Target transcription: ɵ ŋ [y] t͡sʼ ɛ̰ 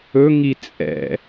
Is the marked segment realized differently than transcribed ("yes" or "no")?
yes